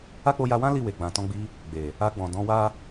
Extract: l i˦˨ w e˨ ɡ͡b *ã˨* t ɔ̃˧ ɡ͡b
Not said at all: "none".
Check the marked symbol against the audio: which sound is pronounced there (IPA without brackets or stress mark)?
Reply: ã˨